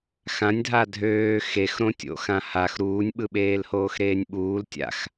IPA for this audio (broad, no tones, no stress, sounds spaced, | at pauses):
x ã nʲ dʱ a dʱ øː x e x ɾ õ tʲ o̰ x ã h a x ɾ uː nʲ ɓ ɯ ɓ eː l h oː x ɾ eː nʲ ɓ uː l tʲ a̰ x